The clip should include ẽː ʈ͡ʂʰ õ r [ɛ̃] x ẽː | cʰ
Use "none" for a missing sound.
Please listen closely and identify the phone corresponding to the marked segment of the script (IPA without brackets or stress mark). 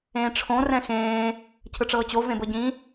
ɛ̃